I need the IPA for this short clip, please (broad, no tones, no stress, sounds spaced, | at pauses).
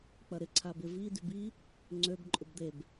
k͡p ɐ ɾ ɪ ǀʰ a b ɪ v i d y b i | ŋ͡ǀ ø b ǃʼ ʊ b d̪ e b